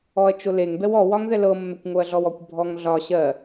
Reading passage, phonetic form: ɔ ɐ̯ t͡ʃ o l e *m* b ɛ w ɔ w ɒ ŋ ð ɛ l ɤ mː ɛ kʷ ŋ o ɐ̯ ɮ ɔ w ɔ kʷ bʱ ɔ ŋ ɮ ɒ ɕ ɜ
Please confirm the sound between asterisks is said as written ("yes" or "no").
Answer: no